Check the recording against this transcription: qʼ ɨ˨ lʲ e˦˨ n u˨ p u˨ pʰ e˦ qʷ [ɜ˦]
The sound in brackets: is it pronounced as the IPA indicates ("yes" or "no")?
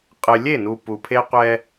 no